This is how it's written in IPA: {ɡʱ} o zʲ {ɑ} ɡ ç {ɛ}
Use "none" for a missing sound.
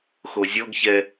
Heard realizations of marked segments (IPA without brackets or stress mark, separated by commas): x, ɔ, ɛ